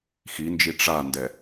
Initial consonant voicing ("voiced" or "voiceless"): voiceless